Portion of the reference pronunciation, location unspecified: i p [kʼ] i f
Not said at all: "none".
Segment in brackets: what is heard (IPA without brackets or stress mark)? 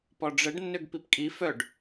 kʼ